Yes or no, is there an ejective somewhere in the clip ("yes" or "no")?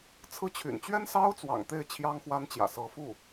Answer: no